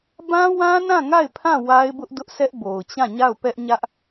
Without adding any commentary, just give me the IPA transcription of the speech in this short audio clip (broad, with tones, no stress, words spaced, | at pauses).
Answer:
bã˦wã˦nã˦˨ŋa˦˨ɪ̯ pʰã˦˨ wa˦ɪ̯bʊ˦ʔdʊ˦ʔsɛ˦ʔ bo˨ʊ̯t͡ɕã˦˨ɲa˦˨ʊ̯pɛ˦ʔ ɲä˦ʔ